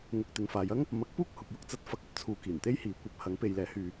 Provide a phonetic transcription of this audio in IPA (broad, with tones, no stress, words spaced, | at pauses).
ŋʊ˧k̚ t̪ɪ˨ŋfaː˨˧jɐ˥ŋ | mɐ˨˥k̚puː˥k̚ hʊ˨k̚jʊ˧k̚t͡sɐ˨˥t̚ fɐ˨˥k̚ ɐ˧p̚t͡sʰuː˨˧ kiː˨˩nt̪e˥jhiː˨˥kʷɐ˨˥p̚ hɐ˨˥ŋ pe˨˧jlɛː˨˥ hyː˧